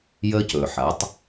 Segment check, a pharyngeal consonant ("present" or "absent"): present